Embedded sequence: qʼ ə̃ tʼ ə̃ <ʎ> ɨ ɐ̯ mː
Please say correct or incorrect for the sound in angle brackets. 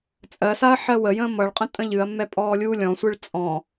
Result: correct